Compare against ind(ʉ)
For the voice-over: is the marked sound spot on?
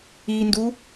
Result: no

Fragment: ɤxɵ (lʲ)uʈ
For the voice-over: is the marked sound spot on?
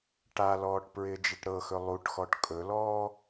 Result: no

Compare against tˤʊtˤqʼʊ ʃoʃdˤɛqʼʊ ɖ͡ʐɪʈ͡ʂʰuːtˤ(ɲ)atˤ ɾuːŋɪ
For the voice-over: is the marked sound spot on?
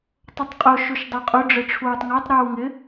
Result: no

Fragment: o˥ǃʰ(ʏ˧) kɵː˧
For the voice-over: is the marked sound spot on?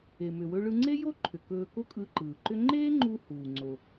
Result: no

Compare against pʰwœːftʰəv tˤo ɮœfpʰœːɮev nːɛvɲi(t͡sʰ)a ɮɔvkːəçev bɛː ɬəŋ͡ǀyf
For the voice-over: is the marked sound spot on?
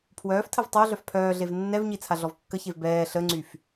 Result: yes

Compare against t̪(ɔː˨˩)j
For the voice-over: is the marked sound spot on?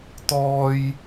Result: no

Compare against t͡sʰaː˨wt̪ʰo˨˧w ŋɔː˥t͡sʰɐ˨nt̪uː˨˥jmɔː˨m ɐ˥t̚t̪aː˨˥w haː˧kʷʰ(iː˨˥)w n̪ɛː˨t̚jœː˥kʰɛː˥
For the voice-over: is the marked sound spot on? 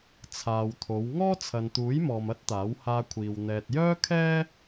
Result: no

